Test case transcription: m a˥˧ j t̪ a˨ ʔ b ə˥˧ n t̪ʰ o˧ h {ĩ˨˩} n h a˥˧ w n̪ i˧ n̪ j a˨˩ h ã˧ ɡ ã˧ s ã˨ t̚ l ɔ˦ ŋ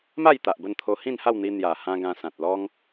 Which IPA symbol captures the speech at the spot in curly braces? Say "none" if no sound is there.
ĩ˥˧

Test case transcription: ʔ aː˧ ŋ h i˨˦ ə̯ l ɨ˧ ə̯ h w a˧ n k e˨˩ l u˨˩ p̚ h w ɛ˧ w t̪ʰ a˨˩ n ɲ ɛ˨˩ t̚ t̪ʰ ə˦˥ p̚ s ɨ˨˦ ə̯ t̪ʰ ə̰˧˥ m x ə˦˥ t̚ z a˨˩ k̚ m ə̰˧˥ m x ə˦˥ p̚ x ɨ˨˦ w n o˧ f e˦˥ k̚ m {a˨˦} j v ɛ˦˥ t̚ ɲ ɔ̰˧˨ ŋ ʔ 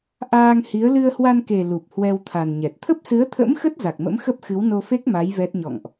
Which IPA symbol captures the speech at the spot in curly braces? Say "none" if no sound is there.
a˨˦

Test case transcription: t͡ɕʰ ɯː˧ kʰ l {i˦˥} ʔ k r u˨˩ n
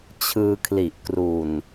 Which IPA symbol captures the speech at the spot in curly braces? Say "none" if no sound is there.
i˨˩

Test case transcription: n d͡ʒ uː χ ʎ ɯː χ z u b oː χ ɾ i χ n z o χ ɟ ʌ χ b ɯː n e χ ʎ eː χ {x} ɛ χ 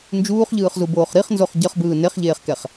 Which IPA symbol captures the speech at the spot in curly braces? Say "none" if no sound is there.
k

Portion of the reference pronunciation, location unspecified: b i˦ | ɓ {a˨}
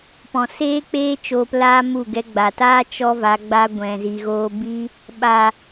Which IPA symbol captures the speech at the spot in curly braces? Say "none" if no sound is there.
a˨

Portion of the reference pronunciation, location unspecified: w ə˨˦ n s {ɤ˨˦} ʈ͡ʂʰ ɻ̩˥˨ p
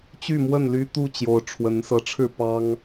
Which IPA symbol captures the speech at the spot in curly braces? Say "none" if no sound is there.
ɤ˨˦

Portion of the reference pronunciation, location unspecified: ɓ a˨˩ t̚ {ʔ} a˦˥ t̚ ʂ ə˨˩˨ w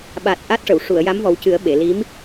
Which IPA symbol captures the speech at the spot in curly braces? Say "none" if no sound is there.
ʔ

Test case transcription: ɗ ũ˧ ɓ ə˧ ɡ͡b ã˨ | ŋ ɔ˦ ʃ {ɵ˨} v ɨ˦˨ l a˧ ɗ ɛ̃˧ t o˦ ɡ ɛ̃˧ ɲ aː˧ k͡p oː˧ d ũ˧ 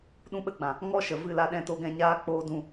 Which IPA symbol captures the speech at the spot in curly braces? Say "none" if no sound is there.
ə˨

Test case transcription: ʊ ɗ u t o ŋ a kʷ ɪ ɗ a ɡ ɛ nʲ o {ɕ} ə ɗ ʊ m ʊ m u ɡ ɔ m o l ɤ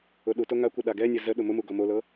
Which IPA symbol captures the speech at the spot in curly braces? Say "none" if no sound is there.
z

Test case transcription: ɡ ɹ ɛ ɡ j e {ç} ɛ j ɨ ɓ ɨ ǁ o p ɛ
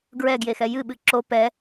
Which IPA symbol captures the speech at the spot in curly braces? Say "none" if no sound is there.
x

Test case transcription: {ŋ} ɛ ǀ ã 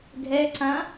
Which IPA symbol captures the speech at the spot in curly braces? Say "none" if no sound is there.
ɡʱ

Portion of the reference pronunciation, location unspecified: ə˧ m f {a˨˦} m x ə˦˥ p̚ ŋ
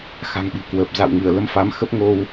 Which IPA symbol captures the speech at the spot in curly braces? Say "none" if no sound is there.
a˨˦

